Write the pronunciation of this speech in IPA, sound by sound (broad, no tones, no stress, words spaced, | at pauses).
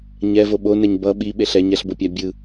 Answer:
ɲɛvo ɓonɛɲ bʌ ɓi ɓeɬɛ ɲɛɬbopʲa bʲɯ